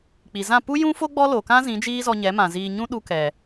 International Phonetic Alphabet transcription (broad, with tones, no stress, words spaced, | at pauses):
k͡pi˨zã˦˨ pu˦jũ˦fo˦ ɡ͡bɔ˦lo˨kã˦ zĩ˨˦d͡ʒiː˦zɔ˧ ɲɛ˨˦mã˨ ziː˧ ɲũ˦ ɗu˧kɛ˨